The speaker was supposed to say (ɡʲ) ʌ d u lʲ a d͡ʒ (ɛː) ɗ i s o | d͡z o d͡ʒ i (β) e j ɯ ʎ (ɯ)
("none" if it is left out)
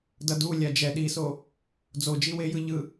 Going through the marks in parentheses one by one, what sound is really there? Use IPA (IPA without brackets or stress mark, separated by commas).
d, ɛ, w, ɯ